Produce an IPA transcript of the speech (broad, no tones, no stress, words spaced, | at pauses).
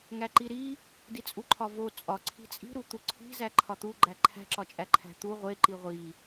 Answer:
ŋæǃiɾi | dit͡sʼuǃʰɒvo t͡sʼɒ ǀʰi̤t͡sʼi̤ ɾut̪uǀʰi̤ zæǃʰɒt̪u ɡ͡ǃæǃʰæ̤ ǁɒt͡ʃʼæǃʰæ̤t̪u ʁʷe ǃiʁʷi